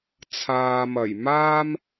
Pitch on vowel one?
low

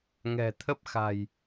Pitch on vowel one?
low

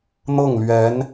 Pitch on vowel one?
falling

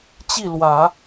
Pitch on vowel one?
falling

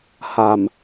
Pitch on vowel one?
low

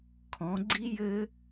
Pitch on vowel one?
rising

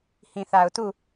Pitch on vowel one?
low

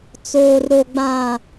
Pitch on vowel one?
low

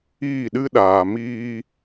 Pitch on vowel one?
falling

